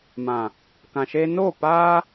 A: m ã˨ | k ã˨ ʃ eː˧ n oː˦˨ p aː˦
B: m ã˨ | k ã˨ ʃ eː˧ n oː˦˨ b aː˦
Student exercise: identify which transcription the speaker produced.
A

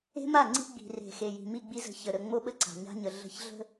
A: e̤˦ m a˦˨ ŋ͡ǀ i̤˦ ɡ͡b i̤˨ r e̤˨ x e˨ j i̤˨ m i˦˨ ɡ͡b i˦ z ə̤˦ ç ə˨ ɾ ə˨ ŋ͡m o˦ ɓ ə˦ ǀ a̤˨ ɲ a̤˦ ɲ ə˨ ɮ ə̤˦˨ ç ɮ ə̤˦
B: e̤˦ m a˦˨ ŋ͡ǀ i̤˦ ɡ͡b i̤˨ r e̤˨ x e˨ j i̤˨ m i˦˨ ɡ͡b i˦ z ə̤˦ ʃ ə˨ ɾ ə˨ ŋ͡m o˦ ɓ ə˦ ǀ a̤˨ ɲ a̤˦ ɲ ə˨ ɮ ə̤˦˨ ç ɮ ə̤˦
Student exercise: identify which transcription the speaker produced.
A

